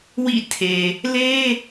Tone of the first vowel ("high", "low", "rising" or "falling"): falling